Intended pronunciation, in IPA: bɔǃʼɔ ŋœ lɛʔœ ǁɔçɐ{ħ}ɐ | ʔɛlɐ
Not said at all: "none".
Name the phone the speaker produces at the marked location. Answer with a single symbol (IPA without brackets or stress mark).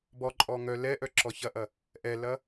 ʔ